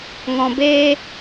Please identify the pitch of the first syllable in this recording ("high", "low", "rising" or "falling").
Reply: low